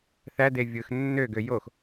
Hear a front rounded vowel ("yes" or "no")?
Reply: yes